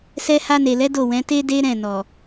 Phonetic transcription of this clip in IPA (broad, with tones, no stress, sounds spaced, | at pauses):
s ɛ˧ h a˧ n e˨ l ɛ˨˦ d o˦˨ w ɛ̃˨˦ t e˦ d e˦ ɾ ɛ̃˦˨ n ɔ˨